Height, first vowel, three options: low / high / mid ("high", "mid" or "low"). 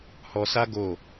mid